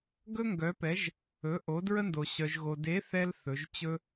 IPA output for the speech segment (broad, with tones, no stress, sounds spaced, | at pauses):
ɡ ɵ˥ ŋ ɡ œ˨˥ p ɛ˨˥ ʒ | ɵ˨˥ ʔ o˨˥ d ɹ ə˥ n d o˧ ɕ œ˧ ʒ ɣ o˧ d e˨˥ θ ɛ˧ l θ ɵ˨˥ ʒ t͡ɕ ɵ˥